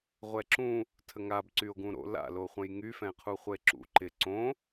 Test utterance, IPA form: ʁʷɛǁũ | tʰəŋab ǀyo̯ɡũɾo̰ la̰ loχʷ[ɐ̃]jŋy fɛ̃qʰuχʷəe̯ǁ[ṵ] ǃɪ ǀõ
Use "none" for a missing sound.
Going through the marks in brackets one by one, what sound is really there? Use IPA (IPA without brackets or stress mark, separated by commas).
ə̃, ṵ